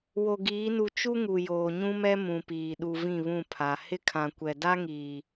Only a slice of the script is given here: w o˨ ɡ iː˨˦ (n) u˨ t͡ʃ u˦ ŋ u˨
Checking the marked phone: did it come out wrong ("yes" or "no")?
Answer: no